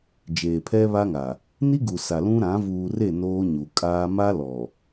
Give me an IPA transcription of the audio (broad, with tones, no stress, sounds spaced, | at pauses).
d͡ʒ eː˨ pʰ ɛ˦ β a˦ ŋ a˨ | n i˦ ɡ u˨ s a˨ l ũ˦ ɾ ã˨˦ v uː˨ r e˦˨ n oː˦ ɲ u˨ kʼ aː˦ m a˦ l ɔ˨